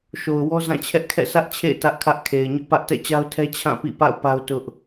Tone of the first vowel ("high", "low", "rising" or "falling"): low